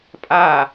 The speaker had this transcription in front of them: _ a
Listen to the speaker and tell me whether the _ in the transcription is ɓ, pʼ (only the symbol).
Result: pʼ